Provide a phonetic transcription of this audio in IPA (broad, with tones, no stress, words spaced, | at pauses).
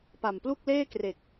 pa˨˩mplu˥˩k̚leː˥˩kre˨˩k̚